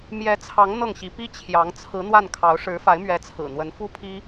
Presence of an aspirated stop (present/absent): present